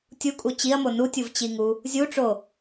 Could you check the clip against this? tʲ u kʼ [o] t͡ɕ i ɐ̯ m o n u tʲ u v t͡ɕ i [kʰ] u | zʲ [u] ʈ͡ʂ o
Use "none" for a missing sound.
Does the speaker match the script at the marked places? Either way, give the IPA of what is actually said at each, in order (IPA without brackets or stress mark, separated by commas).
u, ŋ, u